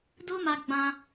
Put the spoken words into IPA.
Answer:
d o˦ m a˧ ɡ͡b ã˧

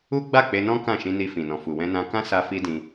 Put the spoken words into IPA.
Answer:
u˦ ɡ͡b a˦˨ k͡p e˧ n ɔ̃˦ k ã˦˨ ʃ ĩ˧ n i˧ f ĩ˨ n ɔ̃˨ f u˨ w ɛ̃˧ n ã˧ k ã˦ s a˦ f i˦ d ĩ˧

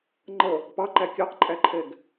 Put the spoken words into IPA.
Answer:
ŋ͡ǃ ʌ | p ɑ ǃ æ kʲ ɑ q ǃʼ æ ǃʰ ɛ ɡ

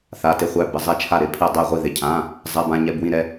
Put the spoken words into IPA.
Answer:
θ a˩˧˩ t ɪ˧˩ χʷ æ˧˩ b ɪ˩˧˩ zˤ ɛ˧˩ t͡ʃʰ a˧˩ ɾ ɪ˧˩ pʰ ɪ˧˩ ə̯ dˤ ɛ˧˩ ʁʷ i˧˩ ð ɪ˩˧˩ cʰ ã˩˧˩ | zˤ ɛ˩˧˩ b ã˧˩ ɲ ɛ˩˧˩ b w ĩ˧˩ ɾ ɛ˧˩

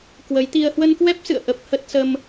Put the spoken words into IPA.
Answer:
k w ə˨˦ j t̪ i˧ ə̯ h w ə˧ n k w ɛ˦˥ p̚ s ɨ̰˧˨ ə̯ ʔ ə˦˥ p̚ h ə˦˥ t̚ s ə˧ m

